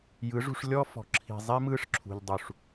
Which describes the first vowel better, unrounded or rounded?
unrounded